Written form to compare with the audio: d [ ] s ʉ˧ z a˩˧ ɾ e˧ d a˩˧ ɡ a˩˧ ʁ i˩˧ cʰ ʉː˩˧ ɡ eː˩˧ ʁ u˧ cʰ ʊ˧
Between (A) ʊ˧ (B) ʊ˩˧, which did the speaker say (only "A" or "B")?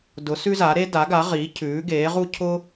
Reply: B